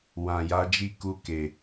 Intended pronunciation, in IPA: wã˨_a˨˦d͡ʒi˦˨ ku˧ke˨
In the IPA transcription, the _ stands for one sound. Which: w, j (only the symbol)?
j